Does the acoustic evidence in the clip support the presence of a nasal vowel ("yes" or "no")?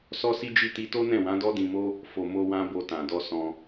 yes